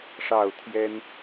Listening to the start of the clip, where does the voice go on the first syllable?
falling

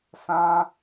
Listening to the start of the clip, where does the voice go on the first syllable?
high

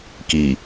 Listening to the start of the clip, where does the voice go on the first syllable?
low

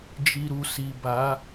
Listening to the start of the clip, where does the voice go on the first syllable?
low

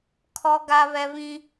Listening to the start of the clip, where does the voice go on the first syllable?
high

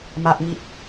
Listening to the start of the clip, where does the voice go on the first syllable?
low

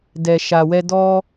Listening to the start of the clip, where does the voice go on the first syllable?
low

